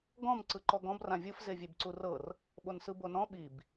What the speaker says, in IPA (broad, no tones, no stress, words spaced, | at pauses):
ɡɔ̃m ǀɯǃɔɡɔ̃b rãvʲɯf zevʲebǀurɤr | ɓonsɯbonɔ̃ ɓib